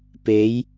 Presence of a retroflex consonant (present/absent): absent